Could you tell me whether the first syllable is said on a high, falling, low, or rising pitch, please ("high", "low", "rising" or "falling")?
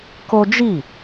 high